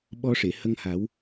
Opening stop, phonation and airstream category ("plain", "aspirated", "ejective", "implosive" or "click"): implosive